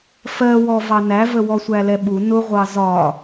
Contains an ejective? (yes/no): no